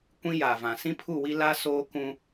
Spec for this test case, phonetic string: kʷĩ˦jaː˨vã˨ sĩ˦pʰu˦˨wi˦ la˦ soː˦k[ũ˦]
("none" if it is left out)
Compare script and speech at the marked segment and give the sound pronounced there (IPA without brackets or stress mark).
ũ˦